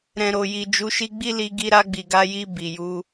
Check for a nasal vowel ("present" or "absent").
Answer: present